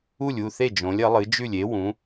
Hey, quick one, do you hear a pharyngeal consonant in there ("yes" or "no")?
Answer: no